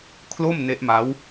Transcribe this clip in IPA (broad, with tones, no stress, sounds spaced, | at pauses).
kʰ l o˥˩ m n e˦˥ ʔ m a˦˥ w